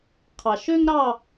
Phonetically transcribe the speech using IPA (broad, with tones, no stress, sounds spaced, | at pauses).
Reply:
qʰ ɑ˨˩ ʃ ø˥ ŋ ɾ ɑ˥˧